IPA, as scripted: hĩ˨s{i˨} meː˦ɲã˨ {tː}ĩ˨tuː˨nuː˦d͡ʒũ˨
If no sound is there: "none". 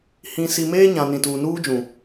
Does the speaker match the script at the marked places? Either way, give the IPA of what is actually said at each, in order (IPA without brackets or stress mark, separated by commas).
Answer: i˨, n